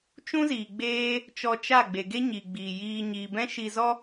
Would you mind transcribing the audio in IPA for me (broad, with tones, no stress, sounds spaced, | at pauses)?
t͡ʃ ũ˦ z iː˨ ɡ͡b eː˦ | t͡ʃ ɔ˧ t͡ʃ a˦˨ ɡ͡b e˨ ɡ e˦ ɲ i˨ ɡ͡b iː˨ j iː˧ ɲ iː˨ b ɛ̃˦ ʃ i˧ z ɔ˦